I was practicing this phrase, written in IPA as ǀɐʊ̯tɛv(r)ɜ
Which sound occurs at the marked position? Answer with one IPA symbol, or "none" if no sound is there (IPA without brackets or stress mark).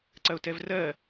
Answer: r